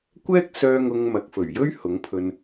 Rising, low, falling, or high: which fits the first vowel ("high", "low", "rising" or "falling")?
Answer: high